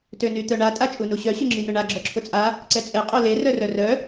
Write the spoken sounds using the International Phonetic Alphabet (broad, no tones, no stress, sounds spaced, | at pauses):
t ø n y t̪ œ ɳ a tʼ a t͡ʃʼ u n u ɕ œ ɕ y ŋ͡ǁ i n ʊ ɳ a ɡ͡ǁ œ ǁʰ ʊ t͡sʼ a | ǀ ɛ t͡sʼ ɛ qʼ o l e r œ r œ r œ